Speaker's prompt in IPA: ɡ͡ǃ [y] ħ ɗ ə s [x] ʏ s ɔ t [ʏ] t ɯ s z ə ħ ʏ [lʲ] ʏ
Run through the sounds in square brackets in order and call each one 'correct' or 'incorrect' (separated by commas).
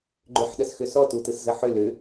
incorrect, correct, incorrect, incorrect